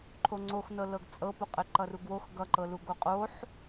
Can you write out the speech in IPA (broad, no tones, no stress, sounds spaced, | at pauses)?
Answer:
ǃʰ o ŋ͡ǀ o x n ɤ l ɤ ɡ t͡sʼ ɤ p u qʼ ɘ ǃ ʌ r u ɡ w o x ɡ ʌ ǃ ɤ l u ɡ o qʼ o ħ